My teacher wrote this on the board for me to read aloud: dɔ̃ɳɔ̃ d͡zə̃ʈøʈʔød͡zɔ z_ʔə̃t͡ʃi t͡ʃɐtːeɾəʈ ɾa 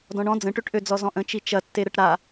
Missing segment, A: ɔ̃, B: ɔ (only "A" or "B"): A